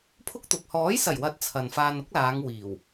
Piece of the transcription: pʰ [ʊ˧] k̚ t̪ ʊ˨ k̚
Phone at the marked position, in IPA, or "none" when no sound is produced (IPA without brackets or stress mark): ʊ˥